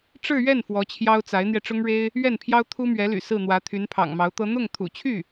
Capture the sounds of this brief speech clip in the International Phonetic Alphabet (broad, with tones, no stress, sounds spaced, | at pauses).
ʈ͡ʂ ɻ̩˥˧ ɥ ɛ˥˩ n f w ɔ˧˥ t͡ɕʰ j ɑ˥ ʊ̯ t͡s a˧˥ ɪ̯ n̪ j ɛ˧ ʈ͡ʂ ʊ˥ ŋ ɻ e˥ ɪ̯ | ɥ ɛ˥˩ n pʰ j ɑ˥ ʊ̯ t̪ʰ u˥ m ɥ ɛ˧˥ l y̰˨˩ s ɹ̩˥˩ n̪ w ä˧˥ t̪ʰ y˧˥ n pʰ ɑ̰˨˩ ŋ m ɑ˧˥ ʊ̯ t̪ ɤ˥ n̪ ʊ˥˩ ŋ t̪ʰ ṵ˨˩ t͡ɕʰ y˥˩